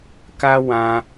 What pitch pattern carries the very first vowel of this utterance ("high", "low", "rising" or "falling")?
high